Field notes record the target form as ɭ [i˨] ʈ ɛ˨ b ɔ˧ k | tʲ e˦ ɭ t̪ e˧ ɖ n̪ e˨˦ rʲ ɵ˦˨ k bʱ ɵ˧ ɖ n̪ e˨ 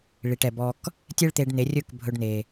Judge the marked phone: correct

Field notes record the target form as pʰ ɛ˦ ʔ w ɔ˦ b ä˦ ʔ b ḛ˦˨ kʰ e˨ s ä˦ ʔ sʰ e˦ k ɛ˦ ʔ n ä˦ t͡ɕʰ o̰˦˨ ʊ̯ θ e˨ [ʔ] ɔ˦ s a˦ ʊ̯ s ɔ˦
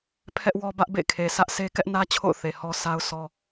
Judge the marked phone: incorrect: h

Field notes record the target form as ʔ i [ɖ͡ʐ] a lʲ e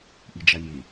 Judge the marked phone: incorrect: d͡ʒ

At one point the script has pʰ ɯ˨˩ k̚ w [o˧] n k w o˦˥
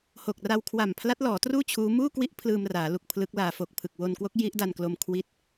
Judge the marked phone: correct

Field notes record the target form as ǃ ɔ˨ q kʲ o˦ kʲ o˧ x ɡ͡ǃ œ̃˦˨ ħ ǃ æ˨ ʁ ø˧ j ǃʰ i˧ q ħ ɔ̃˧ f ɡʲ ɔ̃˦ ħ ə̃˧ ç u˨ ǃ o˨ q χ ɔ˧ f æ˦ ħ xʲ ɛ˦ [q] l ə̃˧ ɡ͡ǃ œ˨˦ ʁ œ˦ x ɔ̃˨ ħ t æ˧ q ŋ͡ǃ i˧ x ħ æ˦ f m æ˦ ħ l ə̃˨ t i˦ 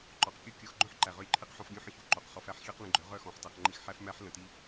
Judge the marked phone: correct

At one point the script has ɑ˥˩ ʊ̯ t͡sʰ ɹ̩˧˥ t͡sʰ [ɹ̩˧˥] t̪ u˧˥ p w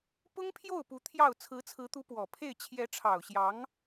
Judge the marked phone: correct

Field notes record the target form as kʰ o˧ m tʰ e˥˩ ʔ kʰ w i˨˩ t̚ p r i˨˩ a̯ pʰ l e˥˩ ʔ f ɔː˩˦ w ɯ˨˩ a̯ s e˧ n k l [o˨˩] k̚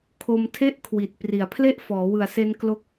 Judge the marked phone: incorrect: o˥˩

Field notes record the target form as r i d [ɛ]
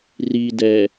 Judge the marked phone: correct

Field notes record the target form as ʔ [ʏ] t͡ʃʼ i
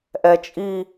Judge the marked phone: incorrect: ɛ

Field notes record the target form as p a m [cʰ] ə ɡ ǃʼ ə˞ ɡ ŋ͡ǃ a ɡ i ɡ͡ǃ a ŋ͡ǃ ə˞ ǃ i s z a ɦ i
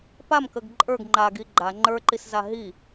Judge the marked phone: incorrect: k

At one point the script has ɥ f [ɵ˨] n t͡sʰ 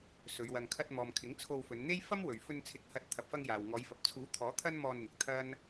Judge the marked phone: incorrect: ɵ˧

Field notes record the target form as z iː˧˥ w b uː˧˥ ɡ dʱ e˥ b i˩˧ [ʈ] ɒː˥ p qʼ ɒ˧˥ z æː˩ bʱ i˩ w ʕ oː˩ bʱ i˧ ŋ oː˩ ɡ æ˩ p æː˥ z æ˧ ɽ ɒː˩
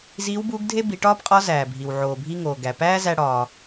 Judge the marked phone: correct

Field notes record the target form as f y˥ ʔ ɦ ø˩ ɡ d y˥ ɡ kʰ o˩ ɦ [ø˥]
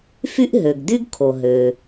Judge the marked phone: incorrect: ø˩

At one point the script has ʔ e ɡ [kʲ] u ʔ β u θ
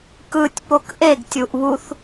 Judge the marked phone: incorrect: tʲ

